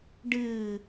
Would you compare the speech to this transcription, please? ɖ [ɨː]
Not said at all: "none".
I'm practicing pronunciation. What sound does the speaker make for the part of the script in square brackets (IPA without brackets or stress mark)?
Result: ɨː